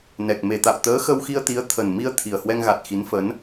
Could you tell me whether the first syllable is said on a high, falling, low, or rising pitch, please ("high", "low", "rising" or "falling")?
low